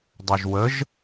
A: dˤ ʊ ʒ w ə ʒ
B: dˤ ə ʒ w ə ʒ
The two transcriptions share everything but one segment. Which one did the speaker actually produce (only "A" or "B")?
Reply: A